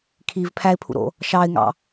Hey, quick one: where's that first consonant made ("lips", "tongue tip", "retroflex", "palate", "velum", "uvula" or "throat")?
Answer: velum